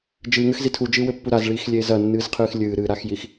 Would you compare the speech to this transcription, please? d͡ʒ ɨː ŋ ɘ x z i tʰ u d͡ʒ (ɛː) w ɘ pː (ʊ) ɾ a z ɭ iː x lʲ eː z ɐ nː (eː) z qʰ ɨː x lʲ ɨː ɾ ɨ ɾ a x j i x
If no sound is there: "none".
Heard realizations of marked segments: ɨː, u, ɨː

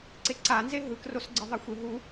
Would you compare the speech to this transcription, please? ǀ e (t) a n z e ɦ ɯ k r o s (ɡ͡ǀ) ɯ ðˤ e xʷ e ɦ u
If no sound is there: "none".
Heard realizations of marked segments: ǀ, ɡ͡ǀ

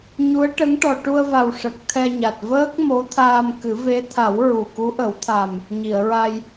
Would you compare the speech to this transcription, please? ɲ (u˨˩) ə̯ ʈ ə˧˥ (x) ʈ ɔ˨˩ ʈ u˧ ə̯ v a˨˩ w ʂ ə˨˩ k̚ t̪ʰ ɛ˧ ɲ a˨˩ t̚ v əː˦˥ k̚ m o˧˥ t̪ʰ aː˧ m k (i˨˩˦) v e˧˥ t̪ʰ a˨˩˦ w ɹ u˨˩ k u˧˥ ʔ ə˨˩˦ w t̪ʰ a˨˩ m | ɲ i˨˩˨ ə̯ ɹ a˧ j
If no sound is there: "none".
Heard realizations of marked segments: u˧˥, ŋ, ɨ˨˩˦

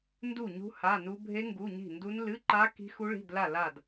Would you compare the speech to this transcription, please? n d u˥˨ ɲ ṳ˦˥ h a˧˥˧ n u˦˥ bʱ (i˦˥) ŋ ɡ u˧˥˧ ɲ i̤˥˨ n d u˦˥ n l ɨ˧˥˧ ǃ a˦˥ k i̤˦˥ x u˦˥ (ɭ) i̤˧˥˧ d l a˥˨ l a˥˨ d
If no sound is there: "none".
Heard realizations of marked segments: e˦˥, ɭ

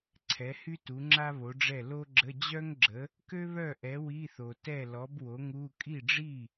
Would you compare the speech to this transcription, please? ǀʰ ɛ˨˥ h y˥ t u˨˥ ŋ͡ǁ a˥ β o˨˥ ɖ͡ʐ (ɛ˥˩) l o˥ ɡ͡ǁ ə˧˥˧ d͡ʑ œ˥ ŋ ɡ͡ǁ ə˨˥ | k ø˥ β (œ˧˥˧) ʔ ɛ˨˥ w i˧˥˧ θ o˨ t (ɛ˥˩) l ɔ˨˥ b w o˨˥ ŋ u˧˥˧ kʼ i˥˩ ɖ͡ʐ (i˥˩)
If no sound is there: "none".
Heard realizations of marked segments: ɛ˥˩, œ˥˩, ɛ˥˩, i˥˩

